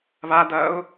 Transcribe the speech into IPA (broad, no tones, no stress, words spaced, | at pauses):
βadɐʊ̯